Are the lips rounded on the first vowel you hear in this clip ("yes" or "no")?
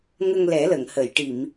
no